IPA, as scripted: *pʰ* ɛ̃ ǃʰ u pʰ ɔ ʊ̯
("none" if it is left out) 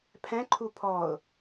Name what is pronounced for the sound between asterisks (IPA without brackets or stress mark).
pʰ